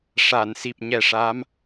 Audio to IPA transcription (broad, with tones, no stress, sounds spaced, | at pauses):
ʂ a˨˩˨ n s i˨˩ p̚ ɲ ɛ˨˩ ʂ a˧˥ m